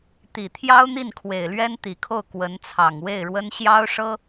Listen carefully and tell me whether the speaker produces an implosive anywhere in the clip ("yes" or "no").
no